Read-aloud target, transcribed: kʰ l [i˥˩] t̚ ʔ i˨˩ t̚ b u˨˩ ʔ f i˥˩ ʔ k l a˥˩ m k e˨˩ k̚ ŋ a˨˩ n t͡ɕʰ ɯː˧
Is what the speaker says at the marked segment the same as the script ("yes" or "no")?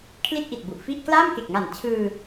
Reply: yes